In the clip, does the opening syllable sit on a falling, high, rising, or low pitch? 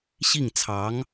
falling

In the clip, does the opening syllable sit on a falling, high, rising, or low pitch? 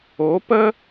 rising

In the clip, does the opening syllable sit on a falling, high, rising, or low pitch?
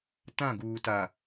falling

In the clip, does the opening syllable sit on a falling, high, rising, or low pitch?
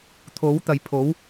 rising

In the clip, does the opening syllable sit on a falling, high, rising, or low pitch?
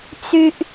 high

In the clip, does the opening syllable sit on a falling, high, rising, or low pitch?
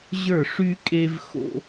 falling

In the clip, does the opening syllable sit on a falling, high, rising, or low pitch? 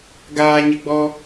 low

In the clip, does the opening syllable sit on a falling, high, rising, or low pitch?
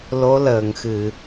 rising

